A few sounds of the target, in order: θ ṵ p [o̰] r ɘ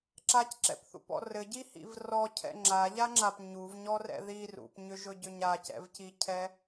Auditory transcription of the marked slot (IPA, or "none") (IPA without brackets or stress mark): ɔ̰